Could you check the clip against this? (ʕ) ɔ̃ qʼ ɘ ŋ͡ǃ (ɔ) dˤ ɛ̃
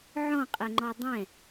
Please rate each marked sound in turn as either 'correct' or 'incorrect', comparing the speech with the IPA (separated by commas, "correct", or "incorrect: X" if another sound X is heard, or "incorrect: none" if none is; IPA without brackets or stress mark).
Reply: correct, correct